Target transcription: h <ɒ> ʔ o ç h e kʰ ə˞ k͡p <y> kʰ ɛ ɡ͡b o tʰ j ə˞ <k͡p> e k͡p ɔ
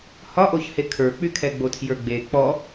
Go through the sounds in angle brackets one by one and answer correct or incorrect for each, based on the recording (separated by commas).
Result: correct, correct, incorrect